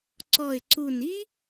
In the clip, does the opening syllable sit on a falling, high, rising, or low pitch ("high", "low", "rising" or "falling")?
low